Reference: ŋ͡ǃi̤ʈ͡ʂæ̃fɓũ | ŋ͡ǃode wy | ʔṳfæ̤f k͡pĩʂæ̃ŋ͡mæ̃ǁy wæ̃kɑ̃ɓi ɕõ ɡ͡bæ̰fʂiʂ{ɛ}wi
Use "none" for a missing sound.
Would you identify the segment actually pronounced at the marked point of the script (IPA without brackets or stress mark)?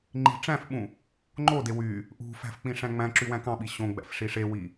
e